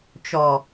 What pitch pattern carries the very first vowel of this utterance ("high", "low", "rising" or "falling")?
low